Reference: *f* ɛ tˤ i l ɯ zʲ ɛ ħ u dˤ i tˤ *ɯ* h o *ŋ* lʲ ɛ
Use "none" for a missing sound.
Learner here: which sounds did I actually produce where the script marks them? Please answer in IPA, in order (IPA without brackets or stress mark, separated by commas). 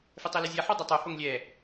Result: f, u, ŋ